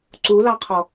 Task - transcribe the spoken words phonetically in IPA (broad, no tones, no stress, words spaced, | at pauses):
ǀulɑqʰɔ